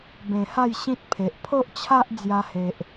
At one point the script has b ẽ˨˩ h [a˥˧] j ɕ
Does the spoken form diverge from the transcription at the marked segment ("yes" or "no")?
no